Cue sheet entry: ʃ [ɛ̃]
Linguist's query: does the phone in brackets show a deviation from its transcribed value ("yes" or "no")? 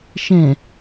no